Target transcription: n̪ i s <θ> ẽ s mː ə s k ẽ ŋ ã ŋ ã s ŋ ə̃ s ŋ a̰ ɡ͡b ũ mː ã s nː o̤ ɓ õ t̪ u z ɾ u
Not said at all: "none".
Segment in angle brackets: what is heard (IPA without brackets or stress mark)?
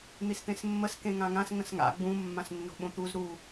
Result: t̪